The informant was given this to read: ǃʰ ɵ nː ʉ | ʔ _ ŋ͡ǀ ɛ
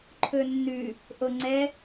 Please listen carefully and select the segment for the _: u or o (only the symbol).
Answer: o